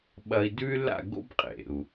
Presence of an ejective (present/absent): present